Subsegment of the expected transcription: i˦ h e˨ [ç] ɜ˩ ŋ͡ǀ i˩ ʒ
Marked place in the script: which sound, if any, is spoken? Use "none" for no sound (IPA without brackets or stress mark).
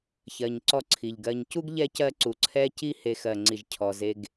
x